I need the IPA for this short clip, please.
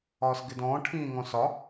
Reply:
ɒː s ɡ ɪ d ɔ̃ː ʈʰ ĩː ŋ ɔ̃ s ɒ

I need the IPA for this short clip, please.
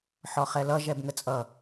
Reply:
ħ ɔ χ ɛ l ʌ ʒ ɛ b ŋ ə t͡sʼ ʌ

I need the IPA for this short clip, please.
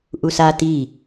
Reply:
ʔ u s a t i

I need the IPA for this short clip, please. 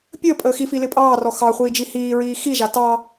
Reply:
pʲ əː pʼ əː x i f i l ɪ pʼ ɑː r ɔ x ɑ χʷ iː d͡ʒ i h iː ɹ iː x i ʒ a t ɑ

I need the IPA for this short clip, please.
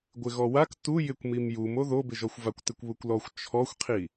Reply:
ɡʷ ɪ ɣ ɔ w a k t u j ɪ kʷ m i m j u m o ð o b ɪ ʒ ɔ xʷ v a kʷ t ɪ kʷ β u kʷ l ɔ xʷ t͡ʃʰ ɔ xʷ qʰ i

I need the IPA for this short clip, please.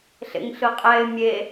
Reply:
ɬ ḛ ŋ ɬ ɯ qʼ ɛ ɪ̯ mʲ e

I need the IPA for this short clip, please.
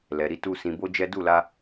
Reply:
l ɛ˨ ɾ i˧ t u˧ s ĩ˨ b o˧ d͡ʒ ɛ˦ d u˦˨ l a˧

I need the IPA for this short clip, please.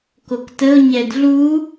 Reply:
k o k t ə ʊ̯ ɲ ɛ d ɮ u

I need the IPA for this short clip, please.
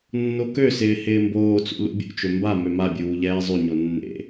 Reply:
nː o k ø s ɪː h ɪː m b oː t͡s ṵ l ṵ bʲ ṵ t͡ʃ ø m b a m ø m a bʲ uː ʎ ɛː zˤ y ɲ o nː ḛ

